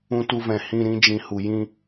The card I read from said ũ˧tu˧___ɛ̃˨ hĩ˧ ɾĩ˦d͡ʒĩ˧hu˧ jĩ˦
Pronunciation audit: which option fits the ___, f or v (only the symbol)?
v